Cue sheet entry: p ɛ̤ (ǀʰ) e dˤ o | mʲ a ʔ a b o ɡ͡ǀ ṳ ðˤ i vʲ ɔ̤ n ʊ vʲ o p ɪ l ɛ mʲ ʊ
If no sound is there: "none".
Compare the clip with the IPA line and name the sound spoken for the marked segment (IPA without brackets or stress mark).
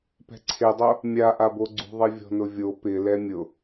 ǀʰ